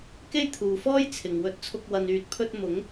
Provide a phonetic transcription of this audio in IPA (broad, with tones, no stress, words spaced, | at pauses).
ke˥jt̪ʰuː˨fɔː˥j t͡sʰɪ˨ŋwɵ˧t̚t͡sʰʊ˧k̚ wɐ˨nyː˨t̚pʰɵ˧t̚ mʊ˨˥ŋ